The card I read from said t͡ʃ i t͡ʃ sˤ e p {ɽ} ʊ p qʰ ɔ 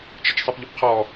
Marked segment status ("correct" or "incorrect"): incorrect